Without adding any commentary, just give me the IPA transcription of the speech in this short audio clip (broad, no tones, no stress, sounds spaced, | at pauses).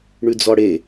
ɳ ʉ d͡z ɔ ɽ e